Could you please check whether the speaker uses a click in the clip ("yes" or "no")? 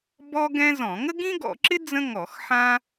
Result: yes